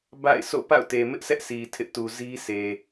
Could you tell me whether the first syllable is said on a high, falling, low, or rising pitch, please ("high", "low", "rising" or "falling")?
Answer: falling